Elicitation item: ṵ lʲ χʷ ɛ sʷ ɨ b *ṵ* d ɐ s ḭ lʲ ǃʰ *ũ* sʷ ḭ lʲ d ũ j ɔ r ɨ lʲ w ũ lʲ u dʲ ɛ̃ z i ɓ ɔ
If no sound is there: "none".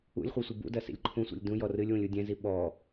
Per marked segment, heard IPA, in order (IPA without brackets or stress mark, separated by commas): ṵ, ũ